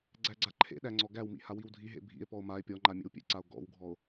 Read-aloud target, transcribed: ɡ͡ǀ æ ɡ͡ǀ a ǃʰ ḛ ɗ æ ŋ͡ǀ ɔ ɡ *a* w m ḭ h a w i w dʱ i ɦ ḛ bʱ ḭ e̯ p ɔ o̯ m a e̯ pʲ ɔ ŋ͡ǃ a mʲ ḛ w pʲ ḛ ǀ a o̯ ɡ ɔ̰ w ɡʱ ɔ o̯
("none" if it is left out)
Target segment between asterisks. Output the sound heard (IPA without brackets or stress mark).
æ